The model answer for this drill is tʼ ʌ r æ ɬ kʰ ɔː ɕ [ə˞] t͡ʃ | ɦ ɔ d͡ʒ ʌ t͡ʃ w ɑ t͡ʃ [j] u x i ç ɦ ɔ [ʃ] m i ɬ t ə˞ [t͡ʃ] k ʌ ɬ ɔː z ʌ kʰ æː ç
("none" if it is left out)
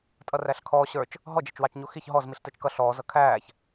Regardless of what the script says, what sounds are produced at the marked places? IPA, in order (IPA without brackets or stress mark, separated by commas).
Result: ə˞, ɲ, z, t͡ʃ